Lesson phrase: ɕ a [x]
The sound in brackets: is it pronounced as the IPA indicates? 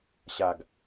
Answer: no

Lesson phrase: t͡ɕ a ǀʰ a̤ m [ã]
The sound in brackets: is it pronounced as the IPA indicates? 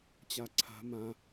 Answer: yes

